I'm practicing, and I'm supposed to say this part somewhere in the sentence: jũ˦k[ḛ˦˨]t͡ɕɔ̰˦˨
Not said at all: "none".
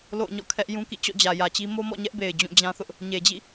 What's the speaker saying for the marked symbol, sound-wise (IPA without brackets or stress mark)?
ḭ˦˨